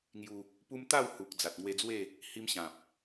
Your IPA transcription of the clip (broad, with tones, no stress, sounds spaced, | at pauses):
ŋ j u˧ | p u˧ m t̪ a˥˧ w h u˨ k̚ d͡z a˨ t̚ ŋ w e˧ d͡z w e˥˧ | h i˧ m ɕ ã˨ p̚